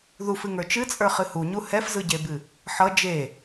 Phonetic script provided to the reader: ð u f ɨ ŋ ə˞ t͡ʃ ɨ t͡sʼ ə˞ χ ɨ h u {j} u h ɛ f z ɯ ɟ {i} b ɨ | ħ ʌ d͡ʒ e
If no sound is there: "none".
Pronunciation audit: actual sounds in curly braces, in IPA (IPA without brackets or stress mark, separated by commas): ɲ, e